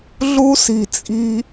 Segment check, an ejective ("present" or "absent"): present